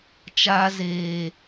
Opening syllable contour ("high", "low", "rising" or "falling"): low